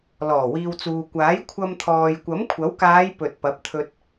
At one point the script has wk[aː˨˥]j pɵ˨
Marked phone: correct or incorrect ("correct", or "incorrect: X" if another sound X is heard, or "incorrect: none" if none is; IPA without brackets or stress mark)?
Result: incorrect: aː˨˧